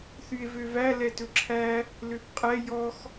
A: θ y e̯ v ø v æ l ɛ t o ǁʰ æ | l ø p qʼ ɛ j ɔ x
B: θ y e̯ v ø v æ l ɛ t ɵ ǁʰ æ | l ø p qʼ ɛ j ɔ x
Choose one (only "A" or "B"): B